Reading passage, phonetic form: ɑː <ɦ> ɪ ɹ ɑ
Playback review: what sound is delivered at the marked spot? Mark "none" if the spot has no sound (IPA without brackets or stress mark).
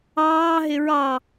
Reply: ɦ